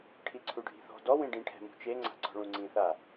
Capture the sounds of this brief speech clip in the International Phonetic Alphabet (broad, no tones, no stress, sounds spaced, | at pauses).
ʈʰ i ǀʰ u ɖʱ i̤ θ ɔ̤ d ɔ w ĩ ɖ ĩ ʈʰ ɛ̤ m ṳ t͡ʃ e ŋ͡ǀ a̤ ǀ ɔ̤ ɭ ũ ŋ͡ǀ ĩ θ a